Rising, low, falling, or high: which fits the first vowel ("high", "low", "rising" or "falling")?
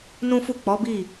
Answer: high